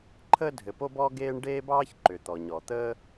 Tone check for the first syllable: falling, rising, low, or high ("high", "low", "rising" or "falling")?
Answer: high